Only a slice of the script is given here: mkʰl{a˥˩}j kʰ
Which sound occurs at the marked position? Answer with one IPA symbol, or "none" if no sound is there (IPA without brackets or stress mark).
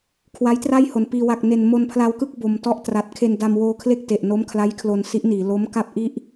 a˦˥